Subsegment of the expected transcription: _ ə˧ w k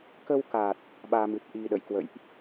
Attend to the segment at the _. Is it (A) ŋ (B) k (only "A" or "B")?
B